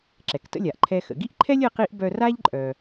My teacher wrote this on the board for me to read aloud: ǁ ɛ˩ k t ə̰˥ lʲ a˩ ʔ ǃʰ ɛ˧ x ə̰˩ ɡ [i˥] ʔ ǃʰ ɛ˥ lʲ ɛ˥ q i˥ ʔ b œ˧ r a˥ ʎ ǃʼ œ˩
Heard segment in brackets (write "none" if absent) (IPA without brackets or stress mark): i˥